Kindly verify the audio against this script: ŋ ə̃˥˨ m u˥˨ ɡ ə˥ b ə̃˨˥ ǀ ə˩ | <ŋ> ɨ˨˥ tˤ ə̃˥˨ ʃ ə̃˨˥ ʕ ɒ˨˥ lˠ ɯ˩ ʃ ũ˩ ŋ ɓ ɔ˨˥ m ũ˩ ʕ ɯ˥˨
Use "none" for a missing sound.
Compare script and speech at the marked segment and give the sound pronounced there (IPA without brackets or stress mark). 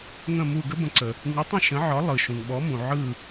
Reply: ŋ